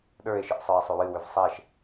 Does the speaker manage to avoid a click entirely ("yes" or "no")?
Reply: yes